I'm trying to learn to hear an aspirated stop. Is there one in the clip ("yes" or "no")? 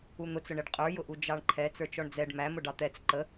yes